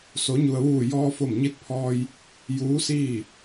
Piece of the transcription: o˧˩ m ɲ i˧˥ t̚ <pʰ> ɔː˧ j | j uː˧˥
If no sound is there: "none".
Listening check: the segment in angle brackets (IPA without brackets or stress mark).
pʰ